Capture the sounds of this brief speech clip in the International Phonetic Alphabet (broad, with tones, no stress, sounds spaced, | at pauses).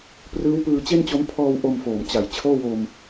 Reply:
p r ɯː˦˥ w p ɯː˧ t͡ɕ e˥˩ n t͡ɕ o˦˥ m pʰ ɔː˧ w ʔ o˧ m f oː˨˩ m t͡ɕ a˨˩ j t͡ɕʰ oː˥˩ w o˧ m